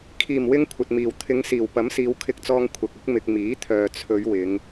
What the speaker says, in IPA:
kʰ iː˨˩ m w ɪ˧ ŋ kʷʰ ɐ˨ t̚ m iː˨˩ w t̪ʰ ɪ˨˧ ŋ s iː˨˩ w p ɐ˨˥ m s iː˨˧ w kʰ ɪ˧ k̚ t͡s ɔː˧ ŋ kʷʰ ɐ˨ k̚ ɪ˨˥ k̚ m ɪ˧ k̚ m iː˨˥ t̪ʰ œː˨ t͡sʰ ɵ˨˧ ɥ w ɪ˨˧ ŋ

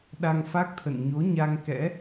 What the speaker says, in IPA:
ɗ a˧ ŋ f a˦˥ k̚ t̪ʰ ə̰˧˨ n ɲ o˨˦ ɲ a˧ ŋ k ɛ̰˧˥

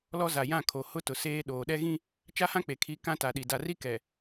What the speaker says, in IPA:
l ɔ˦ z a˨ j ã˦˨ kʰ o˨ h ʊ˦ t ʊ˨ s eː˦ ɗ oː˨ ɗ ɛ˦ ɣ ĩ˦ | t͡ʃ a˦ h ã˦ k͡p e˨ kʰ i˨˦ k ã˦ t a˨ ɗ i˨ d a˨ r i˦ k ɛ˨

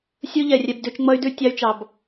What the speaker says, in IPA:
sʲ u˦ ʎ ɛ˨ rʲ ɛ˧ b d ʉ˧ t͡ʃ ŋ͡m ʌ˦ y̯ d ʉ˦ tʲ ɑ˦ y̯ t͡ʃ ɑ˧ b

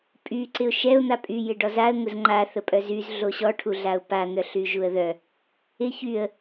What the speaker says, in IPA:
pʼ y ǀ ɪ ʊ̯ ʃ ɛ ʊ̯ n̪ a pʼ y j ɪ ɖ ɔ z a ə̯ ŋ ʊ z ŋ͡ǃ a θ ə pʼ œ z y z ɮ o ɕ ɔ ʈʰ u ɮ a ʊ̯ p a n̪ œ ɬ y ʒ u ə̯ ð œ | ɪ ç y ə̯

